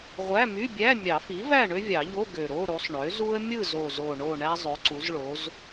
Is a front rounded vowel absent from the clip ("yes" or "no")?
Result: no